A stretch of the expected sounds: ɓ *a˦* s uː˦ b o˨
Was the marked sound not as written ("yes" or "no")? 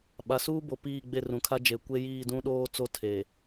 yes